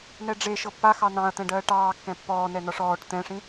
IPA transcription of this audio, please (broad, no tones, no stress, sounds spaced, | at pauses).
n ɛ ɖ͡ʐ e ʃ ɤ pː a x ɑ n ɑ̃ ɐ̯ t̪ ɛ̃ ɖ ɜː ʈ ɑː kː ɛ̃ pː ɔː n ɛ n ɒ ʂ ɔː ʈ t̪ ɛ̃ ʂ ĩ